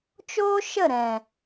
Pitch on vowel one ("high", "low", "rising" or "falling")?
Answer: high